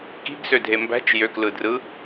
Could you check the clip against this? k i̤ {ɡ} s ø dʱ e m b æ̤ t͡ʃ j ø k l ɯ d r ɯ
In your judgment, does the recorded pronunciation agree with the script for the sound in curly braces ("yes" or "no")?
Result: yes